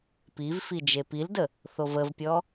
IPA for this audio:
pivfi d͡ʒepildə | θovəvpʲɔ

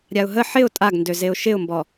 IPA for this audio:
ɾʲaʊ̯ɦə ħɪʊ̯ tʼaɡndøzeʊ̯ ʃɪʊ̯mbɔ

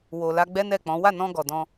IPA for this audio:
wo˨ la˧ɡ͡bɛ˦nɛ˦˨k͡pɔ̃˨˦ wa˦˨nɔ̃˧ ɡɔ˨dɔ̃˧

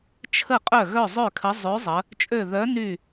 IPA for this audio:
t͡ʃʰə˥˩qʼœ˥˩ ɣœ˥˩zˤø˥˩kʰə˨˥ zˤø˨˥ zˤə˨˥ | t͡ʃʼø˥˩ ðœ˨˥ ny˥˩

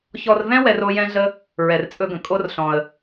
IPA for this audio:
çɔ˧rvɛ̃˦ wɛ˦ro˦jɛ̃˦ɮə˦ | ɹɛ˨rt͡sʼɵ˧ɡə̃˨ kʼo˦rɬɔ̃˨ə̯

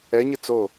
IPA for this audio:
ɛɲɨ t͡so

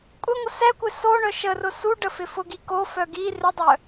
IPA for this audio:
kʷʼɪŋʷə sɛkʷɪ soɳœ ʃərʊ suɖə fɪfʊɡi kofœ ɡi rɪdˤœ

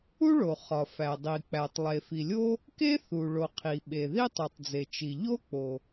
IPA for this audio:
u˥ɭo˩ χɒ˩fæ˩ dˤi˩k͡pæ˩tˤ lˠe˩fi˩lʲo˥ | ke˥θu˩ɭo˩ qʰi˩ɓe˩ ði˥tˤu˩tˤd͡ze˩t͡ʃi˩ ʎo˥ k͡po˩

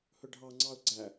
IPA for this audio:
hɵɖʱɑŋ͡ǀɑʊ̯ ɡ͡ǀæ

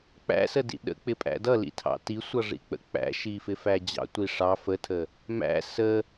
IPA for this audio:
k͡pæ̰sədḭ ɗə̰k͡pɪpʼæ̰ dʌlḭtʰɑ̰ tisʷʌʐḭk͡pə̰ k͡pæ̰ʃifɪfæ d͡ʑɑ̰tʷi ʂɑ fətʰə | mæ̰ sə

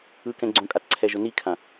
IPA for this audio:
ɯkɛ̃ ɡ͡ǀõkʼatǀʰɛʒʊ nikʰã

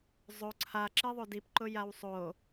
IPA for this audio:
zˤo ǀʰaǁiðˤo dipǃʊjaw sˤo

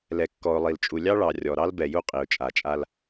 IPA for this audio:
lɛ˨kːɔ˨ʊ̯lˠi˨lt͡ʃʼu˨ lʲɑ˦ɭɑ˨ rʲɔ˨ɾɑ˦lbɛ˨ju˦ qʼi˨ʊ̯t͡ʃʼa˨t͡ʃʼa˦l

